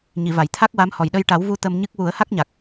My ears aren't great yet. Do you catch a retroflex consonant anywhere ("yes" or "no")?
yes